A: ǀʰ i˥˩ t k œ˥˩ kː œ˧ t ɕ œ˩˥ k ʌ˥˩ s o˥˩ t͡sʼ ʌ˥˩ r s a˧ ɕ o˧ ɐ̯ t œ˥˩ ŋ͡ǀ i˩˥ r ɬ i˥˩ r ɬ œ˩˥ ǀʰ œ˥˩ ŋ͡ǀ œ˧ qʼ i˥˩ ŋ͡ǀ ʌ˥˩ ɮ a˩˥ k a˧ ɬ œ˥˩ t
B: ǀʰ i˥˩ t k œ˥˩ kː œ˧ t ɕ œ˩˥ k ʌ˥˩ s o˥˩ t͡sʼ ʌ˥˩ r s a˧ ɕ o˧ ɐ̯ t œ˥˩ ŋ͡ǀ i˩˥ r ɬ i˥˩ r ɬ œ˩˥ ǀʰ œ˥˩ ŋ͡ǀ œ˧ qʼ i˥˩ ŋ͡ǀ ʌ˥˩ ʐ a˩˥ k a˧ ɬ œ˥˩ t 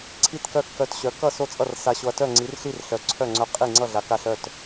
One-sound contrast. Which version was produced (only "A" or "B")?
A